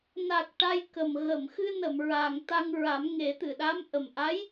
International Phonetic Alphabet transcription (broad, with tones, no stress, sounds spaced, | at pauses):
n a˨˩ k̚ ʈ a˧ j k ə˨˩ m ɣ ə˨˩˨ m x ɨ˧ n ə˨˩˨ m ɹ a˨˩ ŋ t̪ a˧ ŋ ɹ a˨˩˦ m ŋ e˨˩˦ t̪ ɨ˨˩˨ ɗ a˧˥ m ʔ ə˨˩ m ʔ a˧˥ j